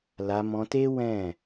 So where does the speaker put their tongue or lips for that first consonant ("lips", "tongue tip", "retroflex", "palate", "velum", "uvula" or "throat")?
tongue tip